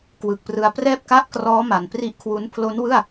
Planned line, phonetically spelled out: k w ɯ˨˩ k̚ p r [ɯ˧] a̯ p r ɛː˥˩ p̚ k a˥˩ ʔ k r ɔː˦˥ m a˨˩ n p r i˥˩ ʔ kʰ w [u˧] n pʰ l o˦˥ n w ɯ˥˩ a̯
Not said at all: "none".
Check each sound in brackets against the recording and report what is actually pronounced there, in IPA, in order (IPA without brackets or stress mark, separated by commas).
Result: ɯ˧, u˦˥